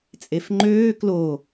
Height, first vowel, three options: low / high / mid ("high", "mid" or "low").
mid